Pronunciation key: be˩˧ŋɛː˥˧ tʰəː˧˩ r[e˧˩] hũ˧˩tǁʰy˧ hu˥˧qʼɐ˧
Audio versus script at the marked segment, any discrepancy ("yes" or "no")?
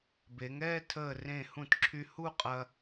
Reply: yes